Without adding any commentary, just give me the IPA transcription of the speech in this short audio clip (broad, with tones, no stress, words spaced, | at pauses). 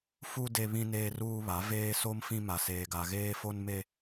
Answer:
fu˦ de˦βĩ˦ neː˦ruː˦βa˨˦ veː˦so˦m fĩ˦ ma˨seː˨ɡa˨ ɣeː˦fo˦n me˦